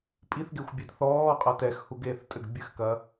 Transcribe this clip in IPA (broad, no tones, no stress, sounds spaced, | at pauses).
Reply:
pʼ i θ ɡ e xʷ bʲ e d θ ɔː qʼ ɐ t ɛ x h u ɡ eː θ tʼ ɘ ɡ bʲ ɨ x k ɐ